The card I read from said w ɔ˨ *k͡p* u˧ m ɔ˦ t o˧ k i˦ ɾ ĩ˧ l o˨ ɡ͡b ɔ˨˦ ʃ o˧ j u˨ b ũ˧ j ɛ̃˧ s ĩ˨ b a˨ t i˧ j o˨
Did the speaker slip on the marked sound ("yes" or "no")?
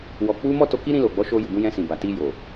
no